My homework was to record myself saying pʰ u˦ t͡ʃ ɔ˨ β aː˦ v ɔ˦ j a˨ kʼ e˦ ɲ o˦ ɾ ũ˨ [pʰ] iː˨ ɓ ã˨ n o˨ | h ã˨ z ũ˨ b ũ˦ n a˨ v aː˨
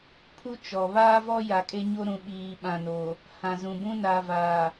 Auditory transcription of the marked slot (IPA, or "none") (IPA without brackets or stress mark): ɓ